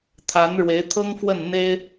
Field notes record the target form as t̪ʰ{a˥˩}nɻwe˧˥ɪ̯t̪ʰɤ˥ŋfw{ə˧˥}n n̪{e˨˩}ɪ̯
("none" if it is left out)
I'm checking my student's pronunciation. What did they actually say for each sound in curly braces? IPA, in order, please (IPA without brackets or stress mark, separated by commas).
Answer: a˧˥, ə˥˩, e˥